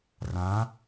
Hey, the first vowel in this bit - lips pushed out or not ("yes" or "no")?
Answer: no